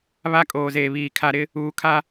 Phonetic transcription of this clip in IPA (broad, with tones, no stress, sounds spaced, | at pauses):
β a˦ kʼ oː˨ z eː˨ β iː˨ kʰ a˨ ɾ ɪ˦ | uː˨ kʰ a˦